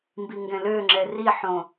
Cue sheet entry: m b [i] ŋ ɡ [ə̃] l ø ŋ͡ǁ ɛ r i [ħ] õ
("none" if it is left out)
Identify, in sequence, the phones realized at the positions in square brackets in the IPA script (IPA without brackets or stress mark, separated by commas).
i, ɛ̃, ħ